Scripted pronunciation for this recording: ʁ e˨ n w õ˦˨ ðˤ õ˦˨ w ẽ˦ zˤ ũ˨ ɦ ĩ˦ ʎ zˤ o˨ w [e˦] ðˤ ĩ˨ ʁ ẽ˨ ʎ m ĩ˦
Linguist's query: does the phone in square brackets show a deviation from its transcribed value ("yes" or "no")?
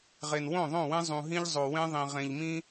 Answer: yes